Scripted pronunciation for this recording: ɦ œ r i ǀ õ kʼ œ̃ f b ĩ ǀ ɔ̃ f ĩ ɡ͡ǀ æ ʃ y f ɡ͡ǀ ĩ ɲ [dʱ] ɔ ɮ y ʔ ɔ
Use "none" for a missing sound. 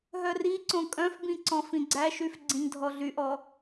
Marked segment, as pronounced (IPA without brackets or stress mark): dʱ